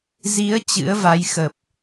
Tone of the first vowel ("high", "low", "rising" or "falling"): rising